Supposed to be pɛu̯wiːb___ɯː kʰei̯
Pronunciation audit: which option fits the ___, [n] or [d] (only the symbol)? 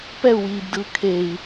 d